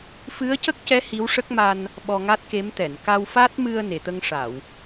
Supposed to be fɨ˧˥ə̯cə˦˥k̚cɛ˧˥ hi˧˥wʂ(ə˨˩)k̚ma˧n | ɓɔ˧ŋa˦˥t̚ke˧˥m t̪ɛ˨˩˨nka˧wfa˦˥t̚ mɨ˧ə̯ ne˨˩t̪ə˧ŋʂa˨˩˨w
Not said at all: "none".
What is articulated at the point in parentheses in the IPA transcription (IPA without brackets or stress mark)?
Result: ə˦˥